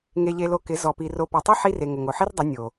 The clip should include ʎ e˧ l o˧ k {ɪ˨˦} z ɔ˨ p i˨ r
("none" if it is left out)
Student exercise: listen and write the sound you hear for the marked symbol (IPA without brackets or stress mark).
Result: ɪ˨˦